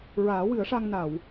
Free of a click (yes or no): yes